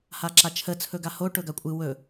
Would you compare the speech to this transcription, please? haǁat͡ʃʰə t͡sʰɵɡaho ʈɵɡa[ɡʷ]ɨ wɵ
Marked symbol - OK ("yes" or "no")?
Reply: no